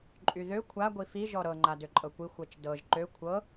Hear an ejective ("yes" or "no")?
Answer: yes